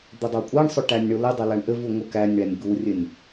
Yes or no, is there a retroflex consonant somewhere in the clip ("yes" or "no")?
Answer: yes